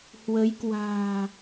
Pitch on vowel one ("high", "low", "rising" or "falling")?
rising